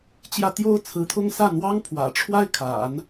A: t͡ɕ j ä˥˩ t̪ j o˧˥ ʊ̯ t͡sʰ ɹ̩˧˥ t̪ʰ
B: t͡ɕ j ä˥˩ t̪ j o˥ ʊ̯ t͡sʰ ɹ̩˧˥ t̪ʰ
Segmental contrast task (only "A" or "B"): B